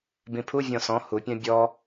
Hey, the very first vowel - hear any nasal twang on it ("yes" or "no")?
yes